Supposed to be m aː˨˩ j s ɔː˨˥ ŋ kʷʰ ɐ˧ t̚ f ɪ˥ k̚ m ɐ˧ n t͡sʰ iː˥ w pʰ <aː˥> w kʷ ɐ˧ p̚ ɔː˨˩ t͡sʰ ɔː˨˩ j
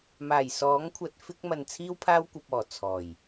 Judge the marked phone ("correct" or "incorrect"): correct